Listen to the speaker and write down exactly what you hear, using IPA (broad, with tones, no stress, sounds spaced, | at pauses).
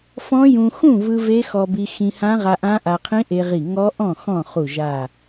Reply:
f ɔ̃˦˥ j ũ˧ x ũ˥˨ v ɯ˧ v e˦˥ x ɔ˧ b i˧ x ĩ˧ h ã˦˥ ʁ a˧ ʔ ã˦˥ ʔ a˧ qʰ ĩ˦˥ ʔ e˧ ʁ i˧˩ ŋ ɔ˦˥ ʔ ɔ̃˥˨ x ɔ̃˥˨ χ u˧˩ ʒ a˧˩